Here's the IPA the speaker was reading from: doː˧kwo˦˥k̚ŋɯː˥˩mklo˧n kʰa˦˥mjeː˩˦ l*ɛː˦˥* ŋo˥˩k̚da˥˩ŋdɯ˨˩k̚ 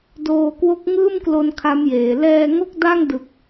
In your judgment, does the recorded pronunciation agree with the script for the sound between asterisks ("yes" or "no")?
no